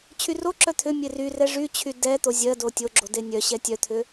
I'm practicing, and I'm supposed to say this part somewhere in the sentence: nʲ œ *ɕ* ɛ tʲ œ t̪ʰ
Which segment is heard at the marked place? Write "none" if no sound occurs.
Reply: ɕ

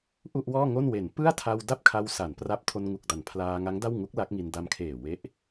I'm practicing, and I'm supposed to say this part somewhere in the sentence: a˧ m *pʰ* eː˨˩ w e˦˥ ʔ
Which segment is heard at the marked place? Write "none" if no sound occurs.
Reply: kʰ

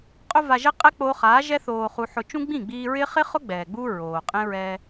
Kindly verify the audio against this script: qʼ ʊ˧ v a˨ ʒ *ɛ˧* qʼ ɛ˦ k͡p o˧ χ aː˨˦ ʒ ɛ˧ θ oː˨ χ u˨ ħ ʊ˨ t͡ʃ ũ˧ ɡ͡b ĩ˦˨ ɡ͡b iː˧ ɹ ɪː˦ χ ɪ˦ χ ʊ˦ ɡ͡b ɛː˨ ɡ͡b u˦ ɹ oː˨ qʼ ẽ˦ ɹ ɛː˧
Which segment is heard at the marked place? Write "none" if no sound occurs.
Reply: ɛ˧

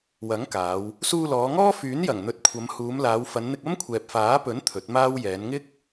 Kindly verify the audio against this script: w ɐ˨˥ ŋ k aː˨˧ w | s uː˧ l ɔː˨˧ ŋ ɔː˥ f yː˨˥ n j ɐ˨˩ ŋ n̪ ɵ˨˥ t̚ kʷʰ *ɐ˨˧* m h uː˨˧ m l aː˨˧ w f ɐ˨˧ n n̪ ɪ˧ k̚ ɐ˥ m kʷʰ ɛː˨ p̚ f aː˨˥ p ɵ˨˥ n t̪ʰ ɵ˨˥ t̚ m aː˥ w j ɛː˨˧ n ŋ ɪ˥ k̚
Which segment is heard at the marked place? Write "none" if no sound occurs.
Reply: ɐ˨˧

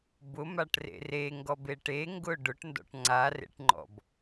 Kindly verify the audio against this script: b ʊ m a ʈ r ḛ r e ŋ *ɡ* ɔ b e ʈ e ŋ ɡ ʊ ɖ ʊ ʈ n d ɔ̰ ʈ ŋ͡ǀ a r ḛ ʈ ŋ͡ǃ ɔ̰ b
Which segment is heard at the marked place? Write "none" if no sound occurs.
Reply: ɡ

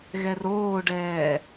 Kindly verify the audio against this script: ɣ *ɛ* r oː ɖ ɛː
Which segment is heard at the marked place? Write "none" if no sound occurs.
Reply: ɛ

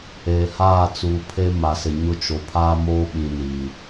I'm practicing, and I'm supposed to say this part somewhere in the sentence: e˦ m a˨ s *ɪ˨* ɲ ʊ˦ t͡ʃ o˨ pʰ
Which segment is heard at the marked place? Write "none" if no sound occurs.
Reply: ɪ˨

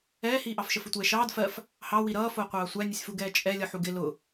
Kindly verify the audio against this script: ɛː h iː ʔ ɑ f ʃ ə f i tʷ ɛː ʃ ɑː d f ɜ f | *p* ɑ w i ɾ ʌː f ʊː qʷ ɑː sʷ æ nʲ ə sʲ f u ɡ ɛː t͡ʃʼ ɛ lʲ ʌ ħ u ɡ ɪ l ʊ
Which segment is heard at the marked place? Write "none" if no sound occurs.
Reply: h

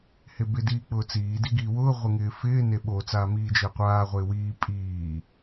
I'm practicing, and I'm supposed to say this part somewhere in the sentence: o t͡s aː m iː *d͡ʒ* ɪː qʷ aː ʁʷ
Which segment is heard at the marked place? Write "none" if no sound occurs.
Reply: d͡ʒ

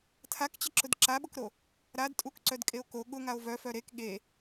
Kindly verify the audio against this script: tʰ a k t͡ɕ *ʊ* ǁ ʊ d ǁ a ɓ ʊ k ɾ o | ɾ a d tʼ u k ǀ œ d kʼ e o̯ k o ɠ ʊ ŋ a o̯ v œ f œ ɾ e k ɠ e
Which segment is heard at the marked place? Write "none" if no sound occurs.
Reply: ə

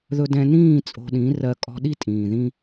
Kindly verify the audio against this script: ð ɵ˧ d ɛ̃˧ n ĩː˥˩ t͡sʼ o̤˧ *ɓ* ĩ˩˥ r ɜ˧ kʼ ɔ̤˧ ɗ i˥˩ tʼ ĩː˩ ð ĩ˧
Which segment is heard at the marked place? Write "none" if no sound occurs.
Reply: ɗ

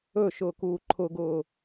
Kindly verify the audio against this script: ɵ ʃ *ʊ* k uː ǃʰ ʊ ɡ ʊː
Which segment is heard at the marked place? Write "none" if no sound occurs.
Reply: ʊː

